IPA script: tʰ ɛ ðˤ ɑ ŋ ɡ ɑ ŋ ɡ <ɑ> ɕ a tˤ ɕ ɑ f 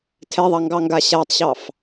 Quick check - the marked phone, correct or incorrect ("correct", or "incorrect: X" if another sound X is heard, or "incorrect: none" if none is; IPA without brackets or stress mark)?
incorrect: a